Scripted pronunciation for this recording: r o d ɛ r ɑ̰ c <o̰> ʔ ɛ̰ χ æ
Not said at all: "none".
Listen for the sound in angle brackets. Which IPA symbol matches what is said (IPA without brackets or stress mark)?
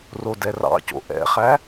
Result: o̰